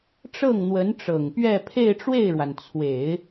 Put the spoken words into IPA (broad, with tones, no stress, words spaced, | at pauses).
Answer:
ʈ͡ʂɤ˥˩ŋn̪wə˧˥n ʈ͡ʂɤ˨˩ŋpɥɛ˥˧ pʰe˥˧ɪ̯ʈ͡ʂwe˥˩ɪ̯ɻwa˩n t͡sʰwe˨˩˦ɪ̯